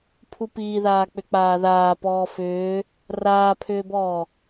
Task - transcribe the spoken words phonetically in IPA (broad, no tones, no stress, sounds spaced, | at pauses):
pʰ u p iː ð aː k͡p ʏ k͡p aː ð aː p ɔː f ʏː | r aː pʰ ʏː b ɔː